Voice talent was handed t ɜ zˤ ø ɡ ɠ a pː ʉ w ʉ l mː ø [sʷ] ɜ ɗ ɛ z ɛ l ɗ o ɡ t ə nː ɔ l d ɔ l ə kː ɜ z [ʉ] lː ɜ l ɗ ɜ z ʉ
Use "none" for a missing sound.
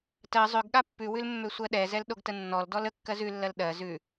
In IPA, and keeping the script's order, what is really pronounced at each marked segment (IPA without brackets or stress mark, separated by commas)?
sʷ, ʉ